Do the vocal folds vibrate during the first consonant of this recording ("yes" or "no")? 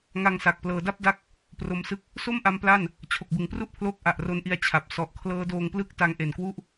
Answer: yes